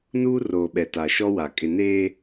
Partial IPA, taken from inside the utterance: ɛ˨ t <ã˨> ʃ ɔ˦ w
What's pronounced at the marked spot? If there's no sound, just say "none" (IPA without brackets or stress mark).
a˨